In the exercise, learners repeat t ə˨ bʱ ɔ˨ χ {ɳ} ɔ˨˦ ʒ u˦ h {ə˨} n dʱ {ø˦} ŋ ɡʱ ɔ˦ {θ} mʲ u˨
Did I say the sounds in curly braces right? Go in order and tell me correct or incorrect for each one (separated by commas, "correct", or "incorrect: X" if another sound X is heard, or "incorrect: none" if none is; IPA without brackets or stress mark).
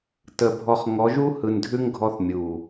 incorrect: ŋ, incorrect: ɯ˨, incorrect: ʉ˦, correct